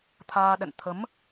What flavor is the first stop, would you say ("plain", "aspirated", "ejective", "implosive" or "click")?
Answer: aspirated